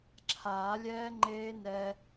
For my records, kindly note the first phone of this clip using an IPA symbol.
ǁʰ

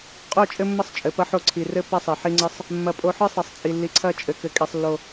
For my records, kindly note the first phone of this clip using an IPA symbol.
qʼ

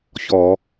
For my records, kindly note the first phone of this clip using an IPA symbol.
ç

